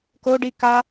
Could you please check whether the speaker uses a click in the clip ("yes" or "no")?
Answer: no